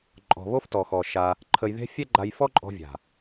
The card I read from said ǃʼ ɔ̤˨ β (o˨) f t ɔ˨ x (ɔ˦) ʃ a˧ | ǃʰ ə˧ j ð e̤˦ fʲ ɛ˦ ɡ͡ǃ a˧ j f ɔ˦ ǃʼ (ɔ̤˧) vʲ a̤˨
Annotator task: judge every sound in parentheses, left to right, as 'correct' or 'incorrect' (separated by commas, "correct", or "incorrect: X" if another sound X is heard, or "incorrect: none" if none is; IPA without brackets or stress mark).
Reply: incorrect: o˦, incorrect: ɔ˨, correct